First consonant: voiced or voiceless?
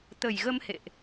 voiceless